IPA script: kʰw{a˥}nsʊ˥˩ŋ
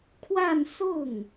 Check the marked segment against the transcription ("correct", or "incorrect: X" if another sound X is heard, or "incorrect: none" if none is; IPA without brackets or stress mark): incorrect: a˥˧